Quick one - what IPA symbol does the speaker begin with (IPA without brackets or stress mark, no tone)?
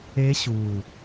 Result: e